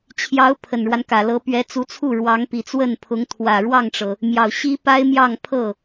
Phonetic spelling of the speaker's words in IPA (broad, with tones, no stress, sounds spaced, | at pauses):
t͡ɕʰ j ɑ˧˥ ʊ̯ pʰ ə˨˩ n ɻ w a˦ n k ä˨˩ l ɤ˧˥ p ɥ ɛ˧˥ t͡s u˧˥ t͡sʰ u˥˩ ɻ w ɑ˧˥ ŋ p i˨˩ t͡s w ə˥˩ n pʰ ʊ˧˥ ŋ t̪ʰ w ä˨˩ ɻ w ɑ˥˩ ŋ ʈ͡ʂ ɤ˩ | m j ɑ˨˩ ʊ̯ ɕ i˥ p a˥ ɪ̯ m j ɑ˥˧ ŋ pʰ ɤ˥˩